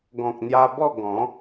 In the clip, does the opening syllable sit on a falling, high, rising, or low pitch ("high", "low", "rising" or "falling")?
low